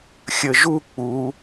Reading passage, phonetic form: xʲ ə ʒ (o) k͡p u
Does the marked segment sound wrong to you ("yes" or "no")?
yes